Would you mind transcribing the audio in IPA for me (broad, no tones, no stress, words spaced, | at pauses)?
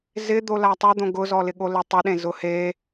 zɪ d̪olatˤɛd̪õ ɡʊzɔlɪ ɠoletˤɪɗẽ zʊhe